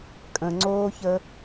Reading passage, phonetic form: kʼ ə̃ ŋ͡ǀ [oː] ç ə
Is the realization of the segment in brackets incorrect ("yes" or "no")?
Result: no